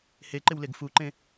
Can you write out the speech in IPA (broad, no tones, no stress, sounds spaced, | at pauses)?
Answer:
h e ǃ ɪ w l e ɡ f u ǃ ẽ